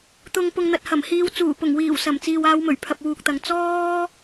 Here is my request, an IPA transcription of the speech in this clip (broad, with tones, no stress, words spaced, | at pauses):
t̪ʊ˨ŋpʊ˨ŋ n̪ɐ˨t̚hɐ˨˩mhiː˧w t͡suː˨˩pʊ˨˩ŋwiː˨˩wsɐ˨˩m t͡siː˨waː˨˧wmɵ˨˩ɥpʰɐ˨p̚ wuː˨k̚t̪ɐ˨ŋ t͡sɔː˥